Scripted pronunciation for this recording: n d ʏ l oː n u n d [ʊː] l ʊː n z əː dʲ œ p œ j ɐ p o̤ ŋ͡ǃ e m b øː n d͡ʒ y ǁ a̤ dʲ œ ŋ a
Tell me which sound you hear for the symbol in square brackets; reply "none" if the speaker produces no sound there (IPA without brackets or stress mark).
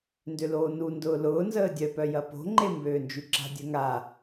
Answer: ʊː